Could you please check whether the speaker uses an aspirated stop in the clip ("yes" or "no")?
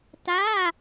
no